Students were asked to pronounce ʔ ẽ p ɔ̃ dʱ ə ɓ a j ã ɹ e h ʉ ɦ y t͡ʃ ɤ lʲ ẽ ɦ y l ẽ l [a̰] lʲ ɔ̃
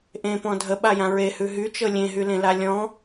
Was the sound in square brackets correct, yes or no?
no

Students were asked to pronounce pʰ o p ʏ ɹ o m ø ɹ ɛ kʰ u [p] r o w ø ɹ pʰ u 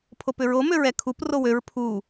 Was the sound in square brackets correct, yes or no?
yes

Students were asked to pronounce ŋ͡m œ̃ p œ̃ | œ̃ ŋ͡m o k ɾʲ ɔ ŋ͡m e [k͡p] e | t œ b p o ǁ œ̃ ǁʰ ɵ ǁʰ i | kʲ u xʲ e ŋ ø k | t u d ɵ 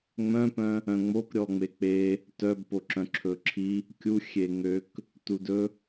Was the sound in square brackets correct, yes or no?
yes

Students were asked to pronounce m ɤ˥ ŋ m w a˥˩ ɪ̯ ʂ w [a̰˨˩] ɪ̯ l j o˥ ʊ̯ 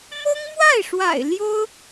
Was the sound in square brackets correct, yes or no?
yes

